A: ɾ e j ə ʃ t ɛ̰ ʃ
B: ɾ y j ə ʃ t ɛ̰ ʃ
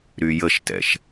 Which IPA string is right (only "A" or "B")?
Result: B